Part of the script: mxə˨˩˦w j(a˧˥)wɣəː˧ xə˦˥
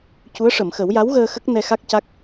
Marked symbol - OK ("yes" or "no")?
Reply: yes